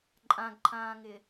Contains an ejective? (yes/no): yes